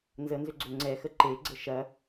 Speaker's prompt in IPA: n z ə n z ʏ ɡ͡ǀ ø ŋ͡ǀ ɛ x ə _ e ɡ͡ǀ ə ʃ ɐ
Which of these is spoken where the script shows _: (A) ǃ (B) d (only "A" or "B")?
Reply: A